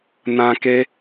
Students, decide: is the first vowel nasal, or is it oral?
nasal